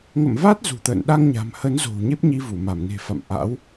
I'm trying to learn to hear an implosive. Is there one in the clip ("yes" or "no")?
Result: yes